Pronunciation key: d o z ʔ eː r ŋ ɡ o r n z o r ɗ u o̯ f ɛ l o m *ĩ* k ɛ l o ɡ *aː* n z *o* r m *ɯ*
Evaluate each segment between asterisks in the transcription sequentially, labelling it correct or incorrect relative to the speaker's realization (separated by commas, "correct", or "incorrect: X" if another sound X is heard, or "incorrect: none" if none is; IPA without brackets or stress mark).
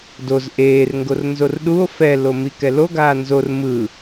incorrect: i, correct, correct, correct